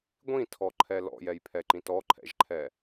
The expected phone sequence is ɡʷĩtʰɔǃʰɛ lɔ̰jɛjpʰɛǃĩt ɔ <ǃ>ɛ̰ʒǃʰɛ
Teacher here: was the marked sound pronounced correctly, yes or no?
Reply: no